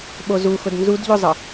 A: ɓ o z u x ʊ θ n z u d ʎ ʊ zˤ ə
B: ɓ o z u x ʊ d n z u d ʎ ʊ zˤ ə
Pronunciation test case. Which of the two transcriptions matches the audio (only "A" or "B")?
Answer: B